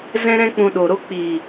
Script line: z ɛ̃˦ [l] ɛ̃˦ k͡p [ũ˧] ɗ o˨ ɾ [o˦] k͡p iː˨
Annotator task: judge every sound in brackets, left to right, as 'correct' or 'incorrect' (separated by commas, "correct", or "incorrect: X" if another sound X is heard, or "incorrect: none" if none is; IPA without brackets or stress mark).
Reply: incorrect: ɾ, correct, correct